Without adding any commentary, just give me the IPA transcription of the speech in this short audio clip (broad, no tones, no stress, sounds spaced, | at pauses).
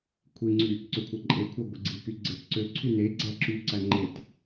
kʷʰ i ŋ͡ǀ y | ǀ ø kʷʰ æ ǃʼ e kʷʰ ɑ ɡʷ e ɡ͡ǀ i k y ɡ͡ǀ e t ǀ ø ǀʰ y n e ɡ͡ǀ æ ǁ y ǀ æ ŋ͡ǃ e t